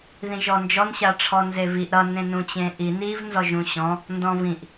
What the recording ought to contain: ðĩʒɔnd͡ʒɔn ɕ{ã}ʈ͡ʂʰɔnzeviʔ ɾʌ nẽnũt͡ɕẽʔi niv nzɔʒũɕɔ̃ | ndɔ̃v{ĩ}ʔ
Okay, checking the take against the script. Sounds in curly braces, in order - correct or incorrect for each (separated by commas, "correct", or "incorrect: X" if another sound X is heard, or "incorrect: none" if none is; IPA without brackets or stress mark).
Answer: incorrect: a, correct